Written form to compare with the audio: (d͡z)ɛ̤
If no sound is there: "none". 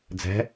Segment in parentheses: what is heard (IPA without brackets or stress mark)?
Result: d͡z